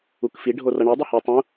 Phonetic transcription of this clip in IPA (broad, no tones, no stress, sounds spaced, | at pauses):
u k f i ɖʱ o r ʌ ɳ i dˤ i h e tˤ ũ